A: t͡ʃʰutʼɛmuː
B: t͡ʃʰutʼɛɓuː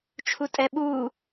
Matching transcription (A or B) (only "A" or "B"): B